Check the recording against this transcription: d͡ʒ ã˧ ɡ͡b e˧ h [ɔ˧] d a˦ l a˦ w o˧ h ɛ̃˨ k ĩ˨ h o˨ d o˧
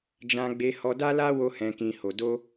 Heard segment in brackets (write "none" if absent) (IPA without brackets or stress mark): ɔ˧